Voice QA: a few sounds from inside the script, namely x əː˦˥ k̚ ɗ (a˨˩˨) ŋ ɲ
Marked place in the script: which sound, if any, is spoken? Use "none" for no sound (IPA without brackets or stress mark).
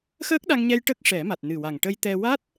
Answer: a˧